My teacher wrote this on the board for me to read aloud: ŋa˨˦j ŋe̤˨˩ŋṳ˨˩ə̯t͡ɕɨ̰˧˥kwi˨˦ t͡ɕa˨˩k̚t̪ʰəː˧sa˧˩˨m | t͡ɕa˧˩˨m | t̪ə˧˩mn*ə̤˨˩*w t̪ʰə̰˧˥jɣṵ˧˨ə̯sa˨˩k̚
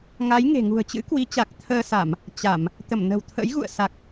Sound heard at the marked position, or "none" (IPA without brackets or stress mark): ə̤˨˩